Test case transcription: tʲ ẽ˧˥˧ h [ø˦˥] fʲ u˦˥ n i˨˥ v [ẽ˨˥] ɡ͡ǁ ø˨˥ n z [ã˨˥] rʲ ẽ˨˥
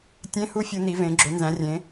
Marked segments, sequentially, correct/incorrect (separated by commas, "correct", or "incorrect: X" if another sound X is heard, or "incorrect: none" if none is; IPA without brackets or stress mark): incorrect: u˦˥, correct, incorrect: æ̃˨˥